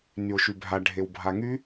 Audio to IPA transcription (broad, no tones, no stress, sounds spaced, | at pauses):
n y o̯ ʃ y bʱ a ɖʱ e w bʱ a ŋ y